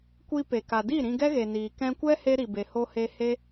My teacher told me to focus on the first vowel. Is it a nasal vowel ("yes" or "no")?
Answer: no